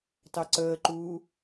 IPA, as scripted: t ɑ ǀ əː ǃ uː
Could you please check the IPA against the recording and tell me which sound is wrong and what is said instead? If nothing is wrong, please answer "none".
none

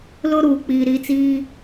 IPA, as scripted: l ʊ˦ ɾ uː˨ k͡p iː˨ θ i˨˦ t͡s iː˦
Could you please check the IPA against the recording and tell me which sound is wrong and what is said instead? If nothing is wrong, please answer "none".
θ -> ɾ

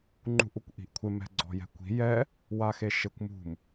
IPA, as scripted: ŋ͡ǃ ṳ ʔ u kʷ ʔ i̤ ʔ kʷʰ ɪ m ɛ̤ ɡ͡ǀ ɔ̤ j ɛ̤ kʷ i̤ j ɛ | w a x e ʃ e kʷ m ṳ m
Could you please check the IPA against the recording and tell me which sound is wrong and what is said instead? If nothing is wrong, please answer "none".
none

